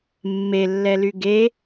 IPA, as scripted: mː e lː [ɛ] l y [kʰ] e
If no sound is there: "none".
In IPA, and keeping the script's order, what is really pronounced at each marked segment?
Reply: ɛ, ɡ

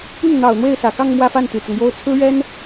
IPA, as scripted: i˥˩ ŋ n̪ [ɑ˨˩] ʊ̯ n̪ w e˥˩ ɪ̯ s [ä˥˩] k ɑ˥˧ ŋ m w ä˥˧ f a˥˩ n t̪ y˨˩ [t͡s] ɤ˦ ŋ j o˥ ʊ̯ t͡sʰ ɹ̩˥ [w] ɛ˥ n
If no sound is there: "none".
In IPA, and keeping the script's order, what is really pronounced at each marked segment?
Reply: ɑ˨˩, ä˨˩, t͡s, ɥ

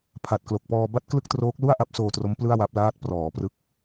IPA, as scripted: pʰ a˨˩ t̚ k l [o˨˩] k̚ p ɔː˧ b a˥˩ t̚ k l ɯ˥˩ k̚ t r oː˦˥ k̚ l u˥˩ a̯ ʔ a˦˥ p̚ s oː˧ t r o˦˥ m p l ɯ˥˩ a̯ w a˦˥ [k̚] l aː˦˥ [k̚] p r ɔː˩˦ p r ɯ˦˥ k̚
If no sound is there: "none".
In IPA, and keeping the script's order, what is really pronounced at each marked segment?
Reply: o˨˩, p̚, t̚

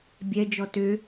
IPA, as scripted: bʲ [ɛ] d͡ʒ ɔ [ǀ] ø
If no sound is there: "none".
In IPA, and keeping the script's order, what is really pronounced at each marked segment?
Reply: ɛ, t

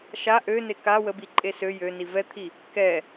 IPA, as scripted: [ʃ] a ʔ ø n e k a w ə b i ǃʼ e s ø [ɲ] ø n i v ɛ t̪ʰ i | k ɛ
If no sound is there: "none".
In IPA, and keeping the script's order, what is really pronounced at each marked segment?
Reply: ʃ, j

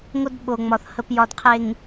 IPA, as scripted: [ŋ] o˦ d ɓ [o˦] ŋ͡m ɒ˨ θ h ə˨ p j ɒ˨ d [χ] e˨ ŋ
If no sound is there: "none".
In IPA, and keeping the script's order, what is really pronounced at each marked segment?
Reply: ŋ, o˨, qʰ

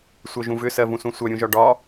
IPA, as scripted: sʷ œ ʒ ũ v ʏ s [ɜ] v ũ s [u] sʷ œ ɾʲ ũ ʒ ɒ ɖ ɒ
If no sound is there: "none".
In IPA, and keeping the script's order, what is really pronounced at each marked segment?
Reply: ɜ, ũ

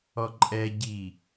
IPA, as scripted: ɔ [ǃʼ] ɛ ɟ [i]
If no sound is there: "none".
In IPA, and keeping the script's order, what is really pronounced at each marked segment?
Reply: ǃʼ, i

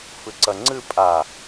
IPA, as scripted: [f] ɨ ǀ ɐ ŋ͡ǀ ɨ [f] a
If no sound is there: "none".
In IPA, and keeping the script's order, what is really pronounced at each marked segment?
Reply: f, pʼ

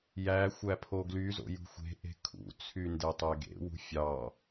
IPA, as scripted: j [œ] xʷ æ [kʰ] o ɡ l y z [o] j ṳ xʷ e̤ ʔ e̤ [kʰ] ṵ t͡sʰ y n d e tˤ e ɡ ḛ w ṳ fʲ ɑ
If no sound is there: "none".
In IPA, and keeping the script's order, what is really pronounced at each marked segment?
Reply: æ, pʰ, o̰, kʰ

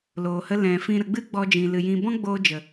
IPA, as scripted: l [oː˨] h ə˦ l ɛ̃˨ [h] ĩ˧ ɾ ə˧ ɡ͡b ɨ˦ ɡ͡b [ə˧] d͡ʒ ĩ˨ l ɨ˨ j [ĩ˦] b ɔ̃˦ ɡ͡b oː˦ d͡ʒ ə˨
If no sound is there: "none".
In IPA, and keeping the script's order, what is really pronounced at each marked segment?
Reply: oː˨, f, ɔ˧, ĩ˧

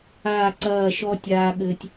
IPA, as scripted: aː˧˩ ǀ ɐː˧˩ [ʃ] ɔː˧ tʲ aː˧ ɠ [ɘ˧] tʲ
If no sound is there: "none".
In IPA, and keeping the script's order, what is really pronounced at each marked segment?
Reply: ʃ, ɘ˧

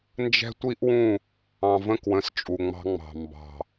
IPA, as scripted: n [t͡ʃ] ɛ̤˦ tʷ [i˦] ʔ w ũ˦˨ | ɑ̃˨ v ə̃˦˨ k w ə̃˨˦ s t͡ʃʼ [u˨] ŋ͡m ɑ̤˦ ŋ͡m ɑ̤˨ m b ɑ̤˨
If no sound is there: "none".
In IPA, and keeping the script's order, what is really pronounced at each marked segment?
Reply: d͡ʒ, i˦, u˨

